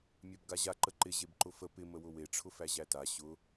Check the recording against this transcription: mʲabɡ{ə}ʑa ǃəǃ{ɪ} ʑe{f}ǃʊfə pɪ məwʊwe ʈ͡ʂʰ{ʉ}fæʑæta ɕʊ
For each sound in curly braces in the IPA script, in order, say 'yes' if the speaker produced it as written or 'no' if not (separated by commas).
no, yes, no, no